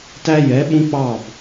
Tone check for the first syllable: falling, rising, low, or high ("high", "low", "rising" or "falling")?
high